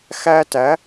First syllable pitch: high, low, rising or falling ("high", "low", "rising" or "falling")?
high